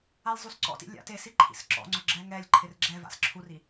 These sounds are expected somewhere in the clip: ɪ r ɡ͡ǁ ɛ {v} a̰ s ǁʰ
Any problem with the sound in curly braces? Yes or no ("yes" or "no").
no